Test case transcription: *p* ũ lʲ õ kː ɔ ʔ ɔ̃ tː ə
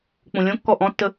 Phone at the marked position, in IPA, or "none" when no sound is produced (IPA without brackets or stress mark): k͡p